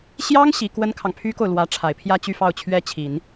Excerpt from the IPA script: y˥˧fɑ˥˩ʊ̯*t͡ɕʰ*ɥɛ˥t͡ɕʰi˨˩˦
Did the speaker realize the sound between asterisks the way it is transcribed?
yes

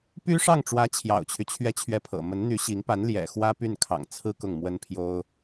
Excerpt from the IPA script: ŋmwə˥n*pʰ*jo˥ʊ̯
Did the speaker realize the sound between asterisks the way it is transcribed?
yes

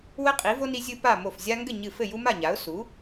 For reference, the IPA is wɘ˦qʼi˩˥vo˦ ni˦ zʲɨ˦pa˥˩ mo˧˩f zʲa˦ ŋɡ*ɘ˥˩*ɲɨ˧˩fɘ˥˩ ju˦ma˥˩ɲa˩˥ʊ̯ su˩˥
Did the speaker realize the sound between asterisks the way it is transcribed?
yes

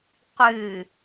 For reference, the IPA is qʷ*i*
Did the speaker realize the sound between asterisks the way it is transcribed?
no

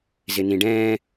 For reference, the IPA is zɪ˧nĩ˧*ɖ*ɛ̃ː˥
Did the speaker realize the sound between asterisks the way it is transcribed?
yes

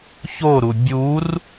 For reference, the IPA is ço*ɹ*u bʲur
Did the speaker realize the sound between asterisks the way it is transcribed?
no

